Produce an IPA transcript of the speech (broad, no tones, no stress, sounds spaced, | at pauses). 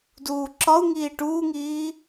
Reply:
d uː ǁ ɒ u̯ ŋ iː ʈ uː ŋ iː